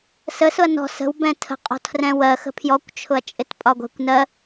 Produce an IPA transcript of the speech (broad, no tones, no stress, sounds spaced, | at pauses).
s ə s ʊ ɐ̯ n ɔ̤ s ə̤ w b ɛ̃ tʰ ə̤ qʼ ɔ̤ tʰ r ɛ̃ w ɜ x ə̤ pʰ j ɔ kʷ t͡ʃʰ ʊ ɐ̯ t͡ʃʼ ɪ t pʼ ɒ ɡʷ ɛ̤ kʷ n ɜ